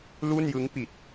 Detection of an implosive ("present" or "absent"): absent